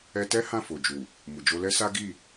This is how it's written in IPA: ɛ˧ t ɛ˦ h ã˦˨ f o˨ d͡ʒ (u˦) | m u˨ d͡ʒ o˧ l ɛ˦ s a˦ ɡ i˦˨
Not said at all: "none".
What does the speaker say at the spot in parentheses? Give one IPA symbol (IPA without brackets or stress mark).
u˨